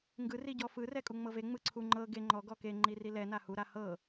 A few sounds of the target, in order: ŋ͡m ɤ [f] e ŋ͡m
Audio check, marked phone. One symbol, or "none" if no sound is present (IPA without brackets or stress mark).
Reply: v